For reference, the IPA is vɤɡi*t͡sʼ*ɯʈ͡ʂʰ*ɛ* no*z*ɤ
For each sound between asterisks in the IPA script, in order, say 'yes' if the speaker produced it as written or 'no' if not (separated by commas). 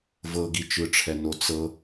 no, yes, no